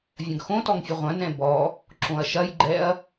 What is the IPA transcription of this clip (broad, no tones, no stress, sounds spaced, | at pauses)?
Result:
vʲ ɐ̃ ɡ x õ t ɔ ŋ fʲ ɘ ʁʷ ɐ̃ n ɛ̃ b ɔ | ǁ õ ɐ̯ ʃ ɐ j ɡ͡ǃ ɛ ɐ̯